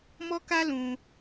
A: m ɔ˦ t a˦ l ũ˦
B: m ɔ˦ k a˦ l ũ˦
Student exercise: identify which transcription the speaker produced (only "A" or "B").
B